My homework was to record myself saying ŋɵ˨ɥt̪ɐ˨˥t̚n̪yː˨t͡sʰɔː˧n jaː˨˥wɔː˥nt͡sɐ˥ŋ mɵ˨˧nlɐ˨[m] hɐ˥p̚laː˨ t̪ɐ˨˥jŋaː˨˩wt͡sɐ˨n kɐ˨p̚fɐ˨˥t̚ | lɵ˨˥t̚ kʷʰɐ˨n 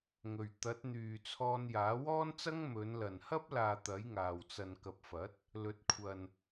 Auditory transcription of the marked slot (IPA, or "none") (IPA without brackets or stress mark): n